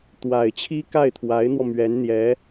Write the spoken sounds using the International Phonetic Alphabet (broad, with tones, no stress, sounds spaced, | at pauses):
t̪ w a˨˩ ɪ̯ t͡ɕʰ i˥ k a˥˩ ɪ̯ t̪ʰ w a˧˥ ɪ̯ n̪ w ɔ˧ m ɥ ɛ˧˥ n n̪ j ɛ˧˥